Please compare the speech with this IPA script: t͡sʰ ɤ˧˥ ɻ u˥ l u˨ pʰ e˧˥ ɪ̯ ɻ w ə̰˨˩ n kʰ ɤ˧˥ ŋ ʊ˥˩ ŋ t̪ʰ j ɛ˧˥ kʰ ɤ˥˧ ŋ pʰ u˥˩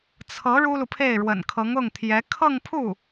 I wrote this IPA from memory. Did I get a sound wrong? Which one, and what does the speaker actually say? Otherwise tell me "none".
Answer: e˧˥ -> e˥˩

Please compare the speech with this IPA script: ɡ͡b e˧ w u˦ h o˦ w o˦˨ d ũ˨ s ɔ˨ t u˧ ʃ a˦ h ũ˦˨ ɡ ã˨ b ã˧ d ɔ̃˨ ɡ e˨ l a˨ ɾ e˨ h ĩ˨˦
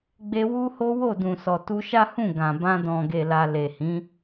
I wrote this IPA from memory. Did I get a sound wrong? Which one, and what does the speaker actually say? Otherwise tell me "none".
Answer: ɾ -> l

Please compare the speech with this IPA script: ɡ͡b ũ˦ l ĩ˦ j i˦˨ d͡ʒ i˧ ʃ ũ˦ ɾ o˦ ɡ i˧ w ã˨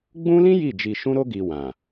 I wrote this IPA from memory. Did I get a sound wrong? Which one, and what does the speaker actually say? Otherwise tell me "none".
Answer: none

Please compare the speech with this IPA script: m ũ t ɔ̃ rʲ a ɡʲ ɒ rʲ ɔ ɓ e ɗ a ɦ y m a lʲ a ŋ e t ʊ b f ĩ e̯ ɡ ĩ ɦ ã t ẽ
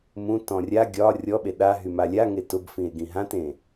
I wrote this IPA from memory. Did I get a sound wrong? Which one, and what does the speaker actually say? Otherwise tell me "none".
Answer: none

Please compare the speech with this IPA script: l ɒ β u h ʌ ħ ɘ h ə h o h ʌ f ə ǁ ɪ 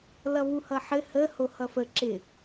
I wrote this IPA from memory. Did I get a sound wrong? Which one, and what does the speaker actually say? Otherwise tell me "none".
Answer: ɒ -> ʌ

